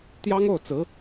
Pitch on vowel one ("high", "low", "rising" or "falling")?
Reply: high